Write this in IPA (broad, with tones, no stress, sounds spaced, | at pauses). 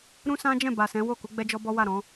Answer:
ɾ ũ˦ s ã˦ d͡ʒ ɛ̃˦˨ b a˨ s ɛ̃˨˦ w o˦˨ k u˨˦ ɡ͡b ɛ˦ d͡ʒ ɔ˦ b ɔ˦ w a˦˨ ɾ ɔ̃˨˦